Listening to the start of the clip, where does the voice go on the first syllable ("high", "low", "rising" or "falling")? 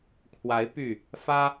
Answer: rising